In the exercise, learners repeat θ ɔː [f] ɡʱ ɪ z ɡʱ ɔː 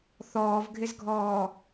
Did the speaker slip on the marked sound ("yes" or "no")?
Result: yes